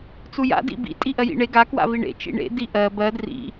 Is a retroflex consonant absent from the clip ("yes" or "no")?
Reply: no